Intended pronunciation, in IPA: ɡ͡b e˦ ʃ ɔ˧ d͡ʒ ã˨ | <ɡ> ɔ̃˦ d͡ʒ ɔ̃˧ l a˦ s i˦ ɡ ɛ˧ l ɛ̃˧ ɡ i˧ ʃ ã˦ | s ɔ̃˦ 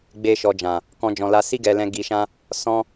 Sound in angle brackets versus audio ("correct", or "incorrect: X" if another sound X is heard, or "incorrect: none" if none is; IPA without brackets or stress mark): incorrect: k